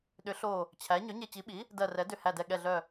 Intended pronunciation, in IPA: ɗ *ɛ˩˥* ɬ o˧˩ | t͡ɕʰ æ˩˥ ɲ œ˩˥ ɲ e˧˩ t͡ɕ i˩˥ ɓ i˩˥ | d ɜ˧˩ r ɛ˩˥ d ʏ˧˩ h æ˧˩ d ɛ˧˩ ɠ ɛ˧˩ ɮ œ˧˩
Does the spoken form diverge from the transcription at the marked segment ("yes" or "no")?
yes